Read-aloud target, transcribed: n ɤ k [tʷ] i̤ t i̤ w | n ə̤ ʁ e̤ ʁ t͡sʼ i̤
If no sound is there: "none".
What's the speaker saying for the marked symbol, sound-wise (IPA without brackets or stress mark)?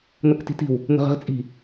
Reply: t